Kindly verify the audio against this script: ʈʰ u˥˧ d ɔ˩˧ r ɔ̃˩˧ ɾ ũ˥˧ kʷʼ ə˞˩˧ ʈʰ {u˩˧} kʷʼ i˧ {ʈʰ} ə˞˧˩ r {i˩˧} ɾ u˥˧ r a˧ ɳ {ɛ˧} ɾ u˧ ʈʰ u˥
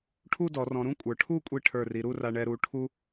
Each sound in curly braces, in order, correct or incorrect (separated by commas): incorrect, correct, correct, correct